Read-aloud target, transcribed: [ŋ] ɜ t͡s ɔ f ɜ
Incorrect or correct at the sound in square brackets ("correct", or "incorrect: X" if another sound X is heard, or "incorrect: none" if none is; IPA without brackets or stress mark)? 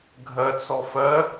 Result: incorrect: ɡʱ